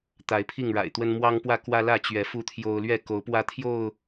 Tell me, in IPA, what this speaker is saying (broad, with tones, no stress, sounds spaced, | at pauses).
t̪ a˨˦ ɪ̯ pʰ i˥˨ ŋ ɻ a̰˨˩ ɪ̯ t̪ w ə˦ n m w ɑ˦ ŋ p w ä˥˨ k w ä˦ l ä˥˨ t͡ɕ ɥ ɛ˨˦ f u˦ t̪ʰ j o˦ ʊ̯ l ɥ ɛ˥˨ k o˨˦ ʊ̯ p w ä˦ t̪ʰ j o˥˨ ʊ̯